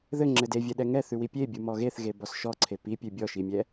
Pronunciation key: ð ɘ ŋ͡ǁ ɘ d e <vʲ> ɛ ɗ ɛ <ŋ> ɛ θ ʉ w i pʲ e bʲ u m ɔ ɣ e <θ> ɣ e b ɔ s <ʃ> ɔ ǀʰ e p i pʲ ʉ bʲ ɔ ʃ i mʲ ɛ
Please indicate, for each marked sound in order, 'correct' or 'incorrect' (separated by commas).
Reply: correct, correct, correct, correct